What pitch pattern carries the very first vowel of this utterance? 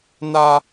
low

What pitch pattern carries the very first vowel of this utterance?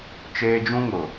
high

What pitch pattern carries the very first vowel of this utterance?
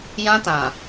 high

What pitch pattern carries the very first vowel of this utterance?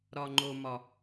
low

